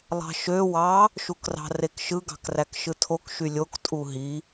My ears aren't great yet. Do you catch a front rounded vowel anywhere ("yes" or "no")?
yes